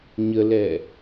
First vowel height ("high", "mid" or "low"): mid